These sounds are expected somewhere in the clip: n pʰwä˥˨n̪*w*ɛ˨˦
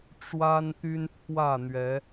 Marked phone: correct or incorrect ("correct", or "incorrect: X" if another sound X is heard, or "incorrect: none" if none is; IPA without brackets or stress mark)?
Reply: incorrect: ɥ